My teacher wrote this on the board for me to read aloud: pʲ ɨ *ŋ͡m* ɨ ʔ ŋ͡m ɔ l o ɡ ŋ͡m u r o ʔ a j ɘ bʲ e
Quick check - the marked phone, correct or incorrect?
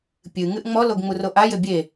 incorrect: ŋ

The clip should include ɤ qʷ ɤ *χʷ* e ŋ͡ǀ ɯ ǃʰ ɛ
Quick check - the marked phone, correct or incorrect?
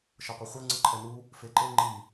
correct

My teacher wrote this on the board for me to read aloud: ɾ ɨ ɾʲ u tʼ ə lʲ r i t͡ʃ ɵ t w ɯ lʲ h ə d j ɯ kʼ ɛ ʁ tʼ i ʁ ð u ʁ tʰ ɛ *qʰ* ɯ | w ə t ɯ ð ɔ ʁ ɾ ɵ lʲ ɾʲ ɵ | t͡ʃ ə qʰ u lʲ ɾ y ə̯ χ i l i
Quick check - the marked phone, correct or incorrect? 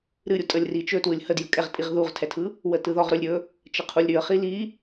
incorrect: tʰ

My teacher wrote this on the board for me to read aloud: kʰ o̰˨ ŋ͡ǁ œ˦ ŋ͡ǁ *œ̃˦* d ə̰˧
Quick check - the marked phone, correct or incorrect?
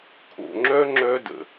incorrect: œ˦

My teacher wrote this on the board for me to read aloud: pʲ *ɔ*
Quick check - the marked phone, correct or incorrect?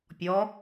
correct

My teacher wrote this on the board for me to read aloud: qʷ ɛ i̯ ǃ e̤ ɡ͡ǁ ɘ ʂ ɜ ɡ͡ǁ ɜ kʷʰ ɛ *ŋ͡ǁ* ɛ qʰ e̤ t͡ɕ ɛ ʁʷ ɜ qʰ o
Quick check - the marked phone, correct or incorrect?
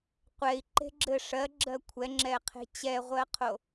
correct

